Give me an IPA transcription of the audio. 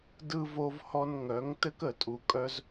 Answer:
d ɯ˨ v o˨ v h ɔ˨ n ŋ œ˨˦ ŋ t ɘ˦ k ə˨ tʼ u˨ kʼ œ˦ z

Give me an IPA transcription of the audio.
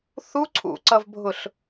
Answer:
θ u ǀʰ ṵ ǀ ʌ v bʱ ʊ ɬ

